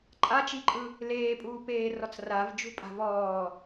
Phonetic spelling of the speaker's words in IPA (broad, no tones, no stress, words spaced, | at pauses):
ǃʼat͡ʃiǃʼɯ | leːpʼuːpeːrɔt͡s ravd͡ʒṳpʼa̤ vɔː